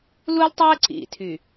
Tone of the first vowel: high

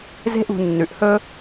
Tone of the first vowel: high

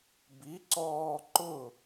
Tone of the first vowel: rising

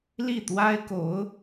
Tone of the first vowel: falling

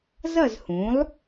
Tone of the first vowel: falling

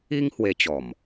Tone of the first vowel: high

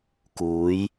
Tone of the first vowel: rising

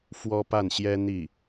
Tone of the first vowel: high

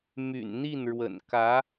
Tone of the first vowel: low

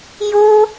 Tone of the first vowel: high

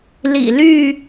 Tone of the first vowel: low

